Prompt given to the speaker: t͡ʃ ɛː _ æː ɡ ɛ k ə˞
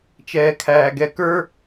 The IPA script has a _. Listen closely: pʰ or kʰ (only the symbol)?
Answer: kʰ